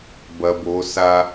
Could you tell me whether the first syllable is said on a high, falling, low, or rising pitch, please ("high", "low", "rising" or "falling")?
low